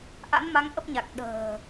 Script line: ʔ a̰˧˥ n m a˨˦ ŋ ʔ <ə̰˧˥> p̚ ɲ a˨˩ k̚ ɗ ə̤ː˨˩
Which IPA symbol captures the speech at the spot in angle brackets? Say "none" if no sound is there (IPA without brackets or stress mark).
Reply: ə˦˥